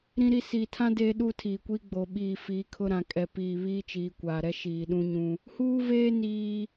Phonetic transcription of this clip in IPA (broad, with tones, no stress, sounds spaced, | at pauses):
ɾ ĩ˦ ɾ i˦ s iː˨ tʰ ã˦ d eː˦ ɗ uː˦ tʰ iː˨ kʷ iː˦ ɡ͡b o˨ ɓ iː˦˨ f iː˨˦ kʰ ʊ˦ ɾ ã˨ kʼ ɛ˨ p iː˨ β iː˦ t͡ʃ iː˨ kʷ aː˨ ɾ ɛ˦ ʃ iː˨ ɗ ũ˦ ɲ ũ˦ | h uː˦ v eː˦ n iː˦